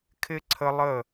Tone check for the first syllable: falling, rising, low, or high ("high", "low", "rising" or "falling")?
high